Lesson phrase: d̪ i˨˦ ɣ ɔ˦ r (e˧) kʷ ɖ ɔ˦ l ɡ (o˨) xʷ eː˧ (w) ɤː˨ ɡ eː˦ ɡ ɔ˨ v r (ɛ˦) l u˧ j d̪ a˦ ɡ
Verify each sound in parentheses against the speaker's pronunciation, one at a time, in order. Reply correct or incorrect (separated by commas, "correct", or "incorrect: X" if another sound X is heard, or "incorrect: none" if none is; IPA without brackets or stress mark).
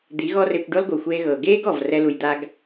correct, correct, incorrect: ɣ, correct